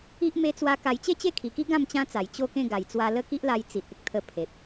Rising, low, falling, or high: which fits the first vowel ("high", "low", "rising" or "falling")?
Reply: high